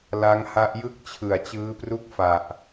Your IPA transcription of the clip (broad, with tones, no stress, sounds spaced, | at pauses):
l a˦˥ ŋ h a˦˥ ʔ j ɯ˥˩ k̚ t͡ɕʰ ɯ˨˩ a̯ t͡ɕ ɯː˦˥ p r u˥˩ k̚ f a˨˩ ʔ